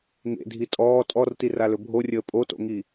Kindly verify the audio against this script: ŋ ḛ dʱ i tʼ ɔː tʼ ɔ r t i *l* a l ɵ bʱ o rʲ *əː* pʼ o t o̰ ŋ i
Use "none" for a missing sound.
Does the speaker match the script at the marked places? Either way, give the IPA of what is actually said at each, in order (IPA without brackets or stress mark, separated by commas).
r, əː